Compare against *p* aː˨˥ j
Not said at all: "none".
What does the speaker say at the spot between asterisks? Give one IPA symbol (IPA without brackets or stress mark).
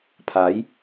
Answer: pʰ